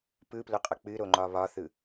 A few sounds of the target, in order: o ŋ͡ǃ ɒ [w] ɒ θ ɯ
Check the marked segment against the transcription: incorrect: β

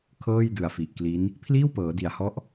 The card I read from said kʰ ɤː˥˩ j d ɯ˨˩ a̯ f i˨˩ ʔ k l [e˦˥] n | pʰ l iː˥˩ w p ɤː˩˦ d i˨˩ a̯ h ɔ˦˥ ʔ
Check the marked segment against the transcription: incorrect: i˦˥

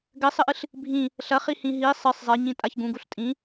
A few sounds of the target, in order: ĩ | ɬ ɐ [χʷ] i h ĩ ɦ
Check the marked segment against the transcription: incorrect: χ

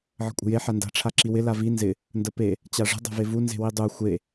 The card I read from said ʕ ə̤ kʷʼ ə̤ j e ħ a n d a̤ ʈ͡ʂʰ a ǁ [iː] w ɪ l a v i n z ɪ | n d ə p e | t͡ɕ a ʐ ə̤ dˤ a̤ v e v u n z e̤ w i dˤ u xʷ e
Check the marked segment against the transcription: incorrect: i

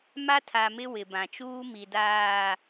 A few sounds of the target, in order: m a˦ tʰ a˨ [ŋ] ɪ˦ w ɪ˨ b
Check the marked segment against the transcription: incorrect: m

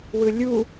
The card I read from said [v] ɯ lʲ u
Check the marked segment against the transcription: incorrect: w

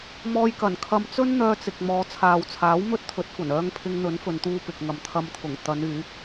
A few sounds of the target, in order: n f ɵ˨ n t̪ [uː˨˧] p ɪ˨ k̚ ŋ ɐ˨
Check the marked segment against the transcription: incorrect: uː˧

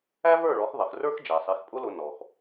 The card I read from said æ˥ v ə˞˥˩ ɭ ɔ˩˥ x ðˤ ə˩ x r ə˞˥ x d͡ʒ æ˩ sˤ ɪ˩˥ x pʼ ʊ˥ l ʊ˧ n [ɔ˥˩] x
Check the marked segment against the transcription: incorrect: ɔ˩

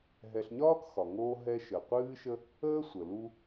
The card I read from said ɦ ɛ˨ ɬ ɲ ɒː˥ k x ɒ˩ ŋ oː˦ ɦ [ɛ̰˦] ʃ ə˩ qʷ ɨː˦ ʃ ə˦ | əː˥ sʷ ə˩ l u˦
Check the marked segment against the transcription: incorrect: ɛ˦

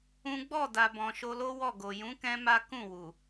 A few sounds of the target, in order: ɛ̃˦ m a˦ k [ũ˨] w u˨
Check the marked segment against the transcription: incorrect: ũ˦˨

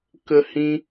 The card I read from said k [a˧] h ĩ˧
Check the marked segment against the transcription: incorrect: ə˧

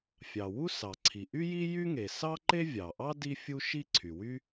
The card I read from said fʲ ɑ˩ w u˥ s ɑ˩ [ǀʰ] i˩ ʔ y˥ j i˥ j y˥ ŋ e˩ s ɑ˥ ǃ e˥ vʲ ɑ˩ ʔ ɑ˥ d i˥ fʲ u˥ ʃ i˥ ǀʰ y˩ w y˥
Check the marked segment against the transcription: correct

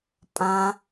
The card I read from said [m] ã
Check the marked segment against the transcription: incorrect: pʼ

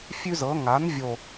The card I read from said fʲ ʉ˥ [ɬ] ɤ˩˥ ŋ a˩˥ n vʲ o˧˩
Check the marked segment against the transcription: incorrect: z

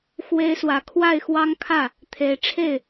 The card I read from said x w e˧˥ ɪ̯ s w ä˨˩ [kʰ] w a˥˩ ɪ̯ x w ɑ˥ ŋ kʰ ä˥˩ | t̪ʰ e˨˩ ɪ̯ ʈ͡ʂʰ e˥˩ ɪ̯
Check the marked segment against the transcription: correct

